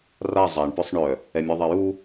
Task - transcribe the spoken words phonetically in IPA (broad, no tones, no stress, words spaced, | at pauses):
ra zˤaɳ pœsˤɳœ | ɛmʲɛðˤaju